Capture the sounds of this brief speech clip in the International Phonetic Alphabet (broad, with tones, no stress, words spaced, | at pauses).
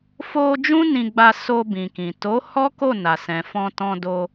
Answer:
fo˧ d͡ʒũ˦nĩ˧ɡ͡ba˧so˧ bĩ˨kĩ˨ to˨˦ hɔ˦ko˦˨na˨sɛ̃˨ fɔ̃˧tɔ̃˧do˧